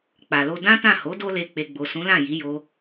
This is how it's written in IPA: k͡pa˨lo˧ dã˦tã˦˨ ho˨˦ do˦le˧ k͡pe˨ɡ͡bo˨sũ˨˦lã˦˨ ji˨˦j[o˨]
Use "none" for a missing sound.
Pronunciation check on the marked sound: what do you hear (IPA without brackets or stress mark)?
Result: o˧